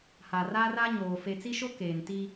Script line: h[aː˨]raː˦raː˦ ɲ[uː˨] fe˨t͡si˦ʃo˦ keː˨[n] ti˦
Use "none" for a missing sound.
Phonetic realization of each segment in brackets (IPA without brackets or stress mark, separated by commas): a˨, oː˨, n